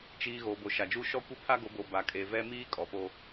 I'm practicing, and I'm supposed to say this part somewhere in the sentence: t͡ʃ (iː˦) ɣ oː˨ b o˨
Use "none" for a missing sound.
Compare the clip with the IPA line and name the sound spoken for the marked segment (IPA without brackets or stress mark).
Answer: iː˨